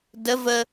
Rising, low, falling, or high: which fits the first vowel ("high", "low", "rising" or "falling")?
rising